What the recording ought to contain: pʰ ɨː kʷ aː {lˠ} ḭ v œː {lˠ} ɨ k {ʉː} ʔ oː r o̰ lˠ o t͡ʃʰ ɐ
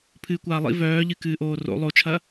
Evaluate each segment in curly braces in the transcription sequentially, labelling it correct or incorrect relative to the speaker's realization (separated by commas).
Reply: correct, incorrect, incorrect